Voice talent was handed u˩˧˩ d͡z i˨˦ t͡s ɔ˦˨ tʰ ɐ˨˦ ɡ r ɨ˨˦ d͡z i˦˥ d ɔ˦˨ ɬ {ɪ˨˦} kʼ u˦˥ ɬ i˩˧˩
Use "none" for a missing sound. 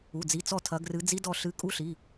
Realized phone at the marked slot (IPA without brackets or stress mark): ɨ˨˦